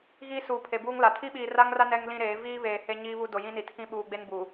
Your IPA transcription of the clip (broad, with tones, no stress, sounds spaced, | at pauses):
ɣ iː˦ s uː˨ pʰ e˨ b uː˦ ŋ l a˨ tʰ i˦ ɓ iː˨ r a˦ ŋ r a˦ n ɛ˦ ŋ l ĩ˦ ɾ eː˨˦ v iː˦ β eː˨ h e˦ ɲ iː˦ β u˦ d o˨ j ĩ˦ n i˨ tʰ ĩ˦ ɓ uː˨ ɡ͡b e˦ n b u˨